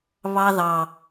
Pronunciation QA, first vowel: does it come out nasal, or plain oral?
oral